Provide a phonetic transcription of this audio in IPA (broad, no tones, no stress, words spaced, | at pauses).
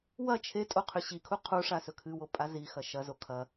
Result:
wɐ t͡ʃʰetʼo qʰʉɕikʰu qʰuʂa sɵkʰɨwo pʼazixɐ ʃɐzo kʰɐ